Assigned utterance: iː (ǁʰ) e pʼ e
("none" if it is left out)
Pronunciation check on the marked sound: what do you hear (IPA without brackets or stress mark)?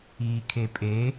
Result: kʰ